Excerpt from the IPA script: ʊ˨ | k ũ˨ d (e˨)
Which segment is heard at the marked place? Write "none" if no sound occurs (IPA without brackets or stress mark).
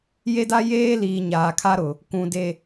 e˨